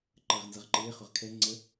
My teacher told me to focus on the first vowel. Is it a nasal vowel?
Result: no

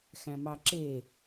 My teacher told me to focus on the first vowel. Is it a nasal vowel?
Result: yes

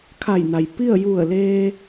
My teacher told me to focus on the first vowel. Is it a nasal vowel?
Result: no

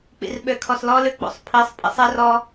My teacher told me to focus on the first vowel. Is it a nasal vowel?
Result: no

